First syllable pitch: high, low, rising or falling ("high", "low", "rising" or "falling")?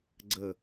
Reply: falling